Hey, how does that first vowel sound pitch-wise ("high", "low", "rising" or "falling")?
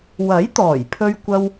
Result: rising